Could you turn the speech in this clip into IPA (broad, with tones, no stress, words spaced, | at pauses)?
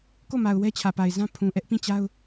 ko˦˨ma˨ʊ̯ wɛ˦t͡ɕʰä˨pa˨ɪ̯zã˦ pʰũ˨ʔɛ˦ʔ pĩ˦˨t͡ɕa˦ʊ̯